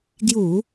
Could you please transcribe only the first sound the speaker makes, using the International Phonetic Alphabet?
ɡ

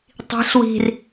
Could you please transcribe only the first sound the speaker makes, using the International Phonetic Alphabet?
tˤ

